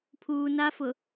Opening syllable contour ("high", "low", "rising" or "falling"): low